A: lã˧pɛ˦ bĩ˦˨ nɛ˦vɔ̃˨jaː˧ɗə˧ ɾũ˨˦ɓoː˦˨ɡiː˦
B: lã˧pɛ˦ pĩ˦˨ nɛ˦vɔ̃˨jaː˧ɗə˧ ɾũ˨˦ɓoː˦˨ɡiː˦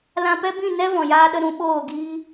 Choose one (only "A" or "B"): A